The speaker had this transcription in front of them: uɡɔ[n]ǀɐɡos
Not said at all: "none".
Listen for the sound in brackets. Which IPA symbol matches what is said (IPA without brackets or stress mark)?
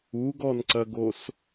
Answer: n